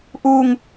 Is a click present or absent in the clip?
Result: absent